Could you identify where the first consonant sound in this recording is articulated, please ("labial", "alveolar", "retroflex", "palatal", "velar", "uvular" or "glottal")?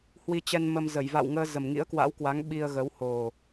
glottal